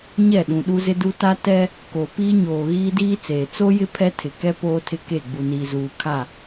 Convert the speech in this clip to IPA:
ɲ ɛ˦˨ ɗ ũ˨ ɗ u˦ z ɪ˦ d u˦ t a˦ t ɛ˦ | k o˨ p iː˦ ɲ oː˨ ɣ iː˦ d iː˦ t͡s eː˨ t͡s o˦ j ɪ˦ pʰ ɛ˦ tʰ ɪ˨ k ɛ˦ p oː˦ tʰ ɪ˦ k e˦˨ ɡ͡b u˨ n iː˨ z uː˨ kʰ a˦˨

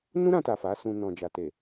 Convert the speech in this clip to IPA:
n ũ˦ ɾ ã˧ t a˨ f a˨˦ s ũ˧ n ɔ̃˨ d͡ʒ a˨ t e˨

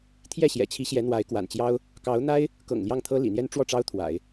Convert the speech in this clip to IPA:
t̪ʰ j ɛ˥˩ ɕ j ɛ̰˨˩ t͡ɕʰ i˧˥ ɕ j ɛ˧˥ n̪ w a˧˥ ɪ̯ k w a̰˨˩ n t͡ɕ j ɑ˥ ʊ̯ | k ɑ˧˥ ʊ̯ n̪ a˥ ɪ̯ | k ɤ̰˨˩ ŋ l j ɑ˥˩ ŋ t̪ʰ ɤ˥ l ḭ˨˩ n̪ j ɛ˥ n ʈ͡ʂ w ɔ˥˩ ʈ͡ʂ ɑ˥ ʊ̯ t̪ʰ w a̰˨˩˦ ɪ̯

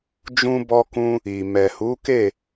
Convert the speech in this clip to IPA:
d͡ʒ ũ˧ b ɔ˧ k ũ˧ | i˨ m ɛ˨ h u˨˦ k e˦˨

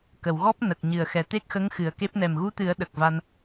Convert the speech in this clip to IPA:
k ə˨˩˨ w ɣ ɔ˦˥ p̚ n ə˨˩ k̚ ɲ ɨ˨˩ ə̯ x ɛ˨˩ t̪ e˦˥ k̚ x ə˧˥ ŋ x ɨ˨˩ ə̯ k e˦˥ p̚ n ɛ˨˩ m ɣ u˧˥ t̪ ɨ˨˩˦ ə̯ ɗ ə˨˩ k̚ v a˧ n

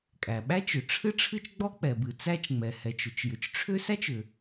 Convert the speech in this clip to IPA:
kʼ æ˩ ɓ æ˥ t͡ʃ ʏ˩ ʈ͡ʂʰ ɨ˥ ʈ͡ʂʰ ɨ˥ t͡ʃ ɡ͡b ɔ˥ k͡p ɛ˩ b ɨ˩ t͡s æ˥ t͡ʃ ŋ͡m ɛ˩ h ɛ˩ t͡ʃ ʏ˩ t͡ʃ j ʏ˩ t͡ʃ ʈ͡ʂʰ ʏ˥ s æ˥ t͡ʃ ʏ˩

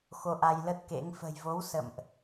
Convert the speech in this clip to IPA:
x o˧ ʔ a˧ j l ə˦˥ t̚ k ḛ˧˥ ŋ f ə̤˨˩ j v o˨˦ w s ə̰˧˨ m ʔ

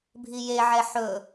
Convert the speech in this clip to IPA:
bʱ i j e ʕ ɛ ħ ɵ

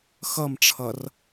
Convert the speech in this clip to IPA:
x ʌ m ʈ͡ʂʰ ʌ r

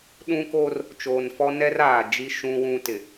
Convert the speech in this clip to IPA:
ɗ ũ˦ k o˦ r | t͡ʃ oː˨ n f ɔ˦ n ɛ˦ r aː˨ d͡ʒ i˦ ʃ ũ˦ w ũ˦ t ɪ˨

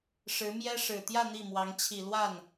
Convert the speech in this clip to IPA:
ʂ ɻ̩˧˥ m j ɛ˥ ʂ ɻ̩˨˩ t̪ j ä˥˧ n̪ i˥˩ m w ɑ˧˥ ŋ t͡ɕʰ i˨˩ l w a˥˩ n

